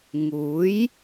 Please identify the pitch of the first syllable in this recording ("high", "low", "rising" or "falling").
rising